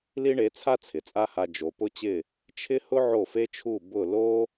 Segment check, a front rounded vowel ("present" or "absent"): absent